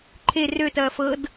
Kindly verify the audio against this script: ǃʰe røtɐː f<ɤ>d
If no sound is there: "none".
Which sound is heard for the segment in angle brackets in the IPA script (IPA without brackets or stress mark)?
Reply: ɤ